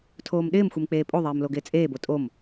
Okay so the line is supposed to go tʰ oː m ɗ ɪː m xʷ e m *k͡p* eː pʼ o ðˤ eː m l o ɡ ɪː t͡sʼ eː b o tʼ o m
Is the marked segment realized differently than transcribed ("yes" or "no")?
no